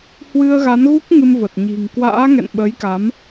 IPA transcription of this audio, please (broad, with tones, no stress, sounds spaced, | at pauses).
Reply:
h w ɨ˧ ə̯ ɣ a˨˦ n ɣ u˦˥ k̚ ŋ ɨ˧ m v ə˨˩ t̚ ɲ i̤˨˩ ŋ k w a̰ː˧˥ ŋ ɛ̰˧˨ n ɓ ə˨˦ j k a˨˦ m